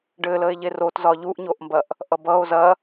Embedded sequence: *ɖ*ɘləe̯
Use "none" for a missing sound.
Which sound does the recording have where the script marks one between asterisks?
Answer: ɖ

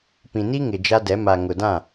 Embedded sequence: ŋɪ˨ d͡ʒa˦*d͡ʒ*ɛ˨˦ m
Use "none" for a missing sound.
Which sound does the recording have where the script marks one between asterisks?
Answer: d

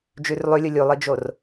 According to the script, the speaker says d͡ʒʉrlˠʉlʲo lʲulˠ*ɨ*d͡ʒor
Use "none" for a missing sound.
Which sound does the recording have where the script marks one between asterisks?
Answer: ɨ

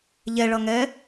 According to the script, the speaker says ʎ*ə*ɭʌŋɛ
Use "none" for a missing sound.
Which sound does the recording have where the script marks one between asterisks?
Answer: ɛ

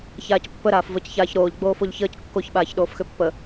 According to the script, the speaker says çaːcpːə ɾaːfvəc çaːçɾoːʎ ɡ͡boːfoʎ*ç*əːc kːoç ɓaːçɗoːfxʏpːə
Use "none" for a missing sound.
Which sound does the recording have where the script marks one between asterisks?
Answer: ç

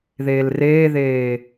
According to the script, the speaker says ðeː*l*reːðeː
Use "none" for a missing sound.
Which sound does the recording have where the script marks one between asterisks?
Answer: l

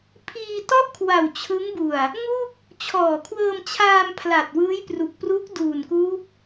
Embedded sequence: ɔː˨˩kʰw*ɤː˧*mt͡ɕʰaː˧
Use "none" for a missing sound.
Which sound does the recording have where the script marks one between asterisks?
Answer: ɤː˧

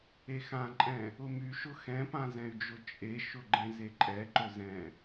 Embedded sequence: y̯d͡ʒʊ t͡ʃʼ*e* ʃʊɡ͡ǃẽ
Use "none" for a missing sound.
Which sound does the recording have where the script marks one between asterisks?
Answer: e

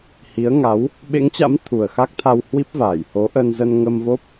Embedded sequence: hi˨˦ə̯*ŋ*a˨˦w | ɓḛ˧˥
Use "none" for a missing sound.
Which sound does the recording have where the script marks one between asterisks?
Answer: ŋ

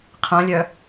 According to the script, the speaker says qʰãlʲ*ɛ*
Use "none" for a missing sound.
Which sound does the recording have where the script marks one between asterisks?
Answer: œ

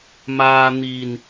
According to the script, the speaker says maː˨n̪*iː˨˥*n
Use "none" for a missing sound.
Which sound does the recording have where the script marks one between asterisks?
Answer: iː˨˩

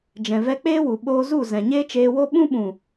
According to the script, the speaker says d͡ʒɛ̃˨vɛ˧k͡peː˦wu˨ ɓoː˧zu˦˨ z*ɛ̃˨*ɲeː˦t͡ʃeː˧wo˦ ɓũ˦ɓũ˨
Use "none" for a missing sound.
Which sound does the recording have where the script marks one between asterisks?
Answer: ɛ̃˨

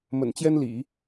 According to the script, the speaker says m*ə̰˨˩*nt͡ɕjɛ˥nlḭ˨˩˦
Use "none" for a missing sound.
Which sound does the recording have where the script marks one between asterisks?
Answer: ə̰˨˩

